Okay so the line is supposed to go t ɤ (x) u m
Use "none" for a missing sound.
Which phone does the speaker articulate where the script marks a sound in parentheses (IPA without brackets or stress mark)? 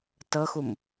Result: x